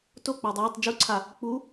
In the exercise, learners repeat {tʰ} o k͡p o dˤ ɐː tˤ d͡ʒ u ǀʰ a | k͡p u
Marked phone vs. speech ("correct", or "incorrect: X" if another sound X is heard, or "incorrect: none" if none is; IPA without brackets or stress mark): incorrect: t